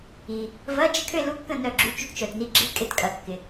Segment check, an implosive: absent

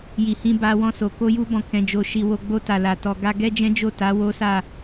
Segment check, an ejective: absent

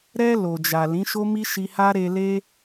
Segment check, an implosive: absent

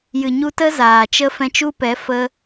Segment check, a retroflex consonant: absent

